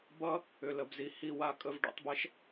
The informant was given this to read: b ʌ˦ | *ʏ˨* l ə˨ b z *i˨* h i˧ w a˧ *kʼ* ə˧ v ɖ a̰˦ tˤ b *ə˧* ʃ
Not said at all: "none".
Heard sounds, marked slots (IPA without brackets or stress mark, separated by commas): ʏ˨, i˨, kʼ, ɛ˧